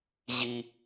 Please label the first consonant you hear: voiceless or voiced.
voiced